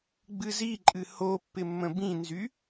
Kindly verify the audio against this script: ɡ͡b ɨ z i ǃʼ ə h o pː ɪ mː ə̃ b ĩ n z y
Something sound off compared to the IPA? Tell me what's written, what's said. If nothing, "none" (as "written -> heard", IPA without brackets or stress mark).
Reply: ə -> ɨ